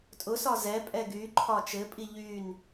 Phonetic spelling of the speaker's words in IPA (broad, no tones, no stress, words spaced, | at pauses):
tʼʊsɒ zɛpʼɛ ɡyǃʰɒ t͡ʃɘpʼi ʎyn